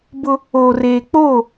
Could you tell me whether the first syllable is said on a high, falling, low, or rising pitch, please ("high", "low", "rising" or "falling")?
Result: high